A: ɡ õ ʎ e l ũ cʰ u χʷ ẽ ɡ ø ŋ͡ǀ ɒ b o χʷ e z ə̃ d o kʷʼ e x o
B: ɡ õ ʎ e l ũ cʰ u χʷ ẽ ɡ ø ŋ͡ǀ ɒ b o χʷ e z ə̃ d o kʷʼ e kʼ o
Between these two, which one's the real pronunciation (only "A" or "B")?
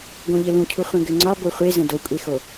A